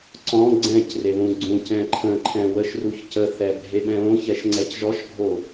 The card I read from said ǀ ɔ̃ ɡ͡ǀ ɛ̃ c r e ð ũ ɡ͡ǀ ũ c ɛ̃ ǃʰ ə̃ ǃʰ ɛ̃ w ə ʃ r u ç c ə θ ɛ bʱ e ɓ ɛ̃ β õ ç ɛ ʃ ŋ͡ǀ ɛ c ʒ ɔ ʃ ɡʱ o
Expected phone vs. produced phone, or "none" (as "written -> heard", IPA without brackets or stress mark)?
none